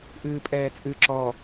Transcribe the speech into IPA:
ʔɨːpʼɛːt͡sʼɨ ǁɔ

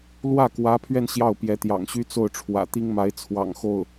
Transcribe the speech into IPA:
lwä˥˩kwä˧˥pʰɥɛ˧n ɕjɑ˥˩ʊ̯pjɛ˧˥t̪jɑ̰˨˩ŋɕy˥ t͡so˥˩ʊ̯ʈ͡ʂʰwä̰˨˩t̪i˥ŋma˧˥ɪ̯ t͡sʰwɑ̰˨˩ŋxo˥˩ʊ̯

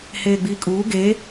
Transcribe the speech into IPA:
heːɡ͡biːkʼuː ɡe

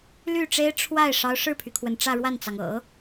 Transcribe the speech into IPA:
ly˥˩ʈ͡ʂe˥ɪ̯ ʈ͡ʂʰwa˥˩ɪ̯ ʂɑ˧˥ʊ̯ʂɻ̩˥˩pʰy˩kʰwə˩n ʈ͡ʂä˥˧ɻwa˥˩nt͡sɑ˩ŋ ɤ̰˨˩˦

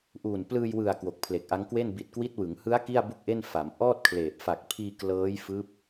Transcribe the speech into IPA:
ʔuː˨˩nplɯː˧jwɯ˨˩a̯ kwo˨˩k̚pʰle˨˩k̚ʔa˦˥ŋkwe˥˩n bi˨˩t̚kwi˦˥t̚ wɯ˩˦ŋhɯ˦˥a̯ ki˥˩a̯bu˥˩k̚ʔe˥˩n fa˩˦mʔɔː˥˩t̚kʰleː˨˩p̚ fa˨˩k̚pʰiː˧klɤː˦˥jfɯː˦˥p̚

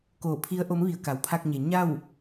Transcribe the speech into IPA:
koː˧˩pʰi˧˥ə̯ ʔo˧˥mʋi˧˩ə̯ ka˩˧wpʰa˧k̚ɲe˩ ɲa˥˨w

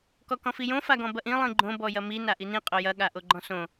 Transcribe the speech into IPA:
kɔkɔ̃fijõ faɡɔ̃bɐʔĩ lˠĩɡ͡ǃõ bɔjɐmi naʔinĩ qʼojɐ ɠaʔoɡ͡ǃɔ̃sõ

